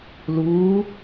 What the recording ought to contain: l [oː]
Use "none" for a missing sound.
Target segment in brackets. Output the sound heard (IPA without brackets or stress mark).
uː